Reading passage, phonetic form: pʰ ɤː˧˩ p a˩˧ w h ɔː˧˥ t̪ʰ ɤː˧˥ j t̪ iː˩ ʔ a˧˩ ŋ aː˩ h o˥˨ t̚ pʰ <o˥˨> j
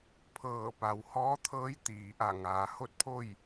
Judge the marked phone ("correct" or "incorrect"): correct